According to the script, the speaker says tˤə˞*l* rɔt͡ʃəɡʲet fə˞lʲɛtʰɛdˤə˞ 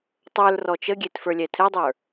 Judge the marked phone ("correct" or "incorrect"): correct